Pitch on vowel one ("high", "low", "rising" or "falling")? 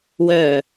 low